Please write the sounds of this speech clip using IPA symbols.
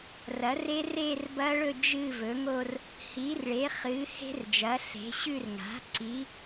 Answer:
rɐ˩˥re˦˥ re˥˧rbɐ˦˥ɭɵ˥˧ d͡ʒɨ˥˧ vɵ˩˥ŋo˥˧r | hi˩˥rɭe˩˥χɨ˩˥ he̤˦˥rd͡ʒɐ˩˥ɬe̤˩˥ɕʉ˥˧r ŋa̤˩˥ ǀi˩˥

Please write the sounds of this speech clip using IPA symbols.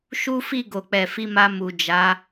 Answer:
ʃu˦fi˦˨ ɡo˨k͡pɛ˨fi˧ma˧ mu˨d͡ʒa˨˦

